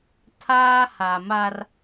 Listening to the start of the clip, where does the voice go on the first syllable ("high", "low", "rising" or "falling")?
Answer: high